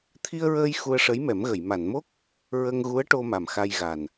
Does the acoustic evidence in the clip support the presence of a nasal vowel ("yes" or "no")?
no